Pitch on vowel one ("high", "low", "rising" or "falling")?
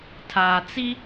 low